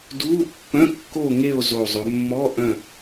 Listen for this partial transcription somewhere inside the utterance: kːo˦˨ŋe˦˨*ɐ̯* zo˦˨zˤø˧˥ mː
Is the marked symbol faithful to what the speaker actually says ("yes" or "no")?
no